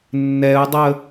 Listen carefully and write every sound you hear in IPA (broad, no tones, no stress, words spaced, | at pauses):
nːɛu̯dˤə